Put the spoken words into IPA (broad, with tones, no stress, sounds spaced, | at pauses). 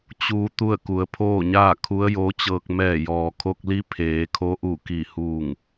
t͡ɕ uː˧ t̪ u˥˨ ə̯ k u˩ ə̯ pʰ oː˥˨ ɲ aː˥˨ kʰ u˧˥ ə̯ j oː˧˥ t͡ɕ ɤː˧ k̚ m ɛː˧˩ j ɔː˩ kʰ o˧ k̚ l i˧˥ pʰ eː˩˧ kʰ o˧˥ ʔ u˧˩ k i˧˩ h uː˧˩ ŋ